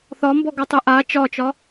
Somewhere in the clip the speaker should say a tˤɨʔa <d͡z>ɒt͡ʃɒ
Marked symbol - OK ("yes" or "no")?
no